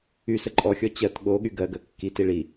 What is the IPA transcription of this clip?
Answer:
y s ə ǃʼ ɔ xʲ ɔ t͡ɕ ɜ t ɠ o ɠ y ɡ ɜ ɡ ɜ kː i t i ɭ i

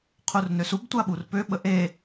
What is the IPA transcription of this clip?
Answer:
qʰ u r n ø s u b tʷ a ɓ u r p ø ɓ ə ʔ e

